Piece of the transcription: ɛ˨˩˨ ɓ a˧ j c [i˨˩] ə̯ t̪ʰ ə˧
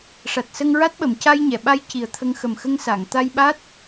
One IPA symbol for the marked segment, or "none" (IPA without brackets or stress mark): i˨˩